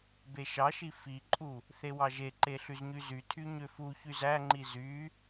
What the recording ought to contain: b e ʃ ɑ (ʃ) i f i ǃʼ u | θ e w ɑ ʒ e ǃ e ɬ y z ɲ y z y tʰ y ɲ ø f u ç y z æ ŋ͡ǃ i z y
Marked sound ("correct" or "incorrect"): correct